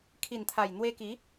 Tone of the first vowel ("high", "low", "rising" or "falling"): low